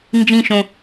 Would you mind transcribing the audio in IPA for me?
nd͡ʒĩ ʃõ

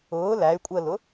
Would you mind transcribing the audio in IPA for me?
ʊː læy̯kʷʼəːlʊ

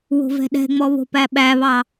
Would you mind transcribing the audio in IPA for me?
wo̤vɛ̤ɗɛ̤ŋ͡mɔ βo̤pæɓæβɑ

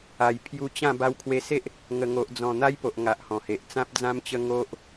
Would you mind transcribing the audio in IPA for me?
a˨˩j pʰju˧t͡ɕã˥˧ ba˧wkʰwe˧se˦ʔ | ŋə˨˩ŋo˨ʔd͡zɔ̃˨˩ n̪a˦jpo˨ʔŋa˨ʔ hɔ̃˨˩he˨ʔ t͡sã˦p̚ d͡zã˦mt͡ɕə˦ ŋo˦ʔ

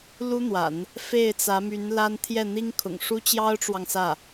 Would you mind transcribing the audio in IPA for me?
lu˥n̪wa̰˨˩˦n | fe˥˩ɪ̯t͡sä˧˥my˧˥n la˥n t̪ʰjɛ˥˩n̪i˥ŋkʰʊ̰˨˩ŋ ʂu˥t͡ɕjɑ˥ʊ̯ʈ͡ʂwɑ˨ŋ sä˥˩

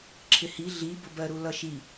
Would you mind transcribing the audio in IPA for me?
ǁʰɪhi ɮibʊbɜ ɾulʌʃi

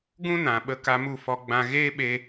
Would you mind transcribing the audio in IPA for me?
ɡũ˦nã˨ ɓə˧ka˧mu˦˨ fɔ˧ɡ͡bã˧ ɣeː˦ɓe˧

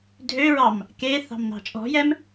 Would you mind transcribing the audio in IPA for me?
dʱøɹɑm | ke θɑ̤mnɑ̤t͡ʃʼɔ̤jɛm

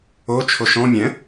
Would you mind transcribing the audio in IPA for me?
o t͡ʃʰoʃɔ̃ mʲɛ̃

